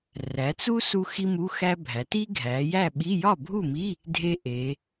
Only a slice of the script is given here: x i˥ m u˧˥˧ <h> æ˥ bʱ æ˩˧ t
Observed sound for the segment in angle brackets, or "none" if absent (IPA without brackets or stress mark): x